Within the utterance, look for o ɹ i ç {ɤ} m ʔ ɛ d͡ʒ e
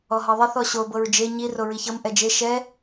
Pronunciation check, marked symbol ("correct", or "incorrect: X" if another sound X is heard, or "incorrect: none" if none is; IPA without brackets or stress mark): correct